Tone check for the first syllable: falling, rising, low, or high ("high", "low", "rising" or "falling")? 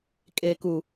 low